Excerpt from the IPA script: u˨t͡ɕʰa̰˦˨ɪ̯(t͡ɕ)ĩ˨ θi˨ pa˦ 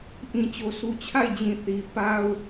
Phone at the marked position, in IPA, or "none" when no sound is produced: d͡ʑ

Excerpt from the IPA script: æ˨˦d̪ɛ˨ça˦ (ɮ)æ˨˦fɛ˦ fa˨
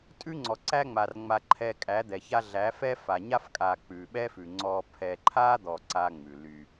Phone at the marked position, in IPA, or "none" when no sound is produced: ɮ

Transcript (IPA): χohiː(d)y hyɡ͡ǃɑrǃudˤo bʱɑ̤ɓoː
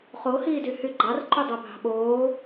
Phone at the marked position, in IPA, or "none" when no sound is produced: d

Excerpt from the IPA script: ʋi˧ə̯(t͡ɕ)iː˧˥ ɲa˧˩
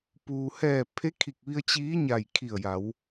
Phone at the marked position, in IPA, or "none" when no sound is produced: t͡ɕ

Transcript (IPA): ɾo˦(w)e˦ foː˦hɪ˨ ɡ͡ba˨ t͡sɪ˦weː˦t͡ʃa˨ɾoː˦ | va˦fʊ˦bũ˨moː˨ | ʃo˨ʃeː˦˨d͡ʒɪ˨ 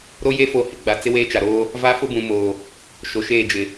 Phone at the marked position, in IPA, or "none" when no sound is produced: j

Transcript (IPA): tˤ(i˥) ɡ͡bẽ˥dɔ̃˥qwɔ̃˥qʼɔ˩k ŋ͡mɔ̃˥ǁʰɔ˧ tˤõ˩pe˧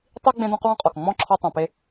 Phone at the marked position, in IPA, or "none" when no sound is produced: i˥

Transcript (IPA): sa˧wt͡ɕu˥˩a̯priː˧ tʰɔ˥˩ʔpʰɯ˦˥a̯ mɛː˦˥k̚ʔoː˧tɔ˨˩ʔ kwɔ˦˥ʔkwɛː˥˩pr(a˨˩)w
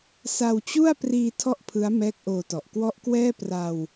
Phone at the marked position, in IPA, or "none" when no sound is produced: a˧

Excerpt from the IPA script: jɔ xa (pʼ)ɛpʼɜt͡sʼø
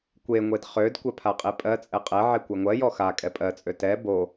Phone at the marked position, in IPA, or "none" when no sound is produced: kʼ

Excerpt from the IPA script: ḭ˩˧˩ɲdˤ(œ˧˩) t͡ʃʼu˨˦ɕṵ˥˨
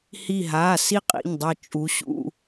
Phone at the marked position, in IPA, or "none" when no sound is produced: œ˧˩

